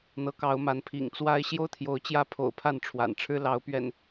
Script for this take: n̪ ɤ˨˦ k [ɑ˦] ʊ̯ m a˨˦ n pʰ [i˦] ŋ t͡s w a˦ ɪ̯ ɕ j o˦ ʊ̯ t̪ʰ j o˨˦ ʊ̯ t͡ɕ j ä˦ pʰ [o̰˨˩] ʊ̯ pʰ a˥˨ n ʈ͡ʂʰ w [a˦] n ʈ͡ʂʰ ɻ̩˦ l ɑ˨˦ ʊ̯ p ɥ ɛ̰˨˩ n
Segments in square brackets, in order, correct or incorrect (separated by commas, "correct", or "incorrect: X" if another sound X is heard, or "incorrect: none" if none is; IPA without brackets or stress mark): incorrect: ɑ˨˦, incorrect: ḭ˨˩, correct, incorrect: a̰˨˩